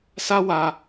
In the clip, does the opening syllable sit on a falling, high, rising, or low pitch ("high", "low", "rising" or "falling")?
high